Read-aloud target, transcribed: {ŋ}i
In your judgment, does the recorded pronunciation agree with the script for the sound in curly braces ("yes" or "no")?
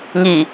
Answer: yes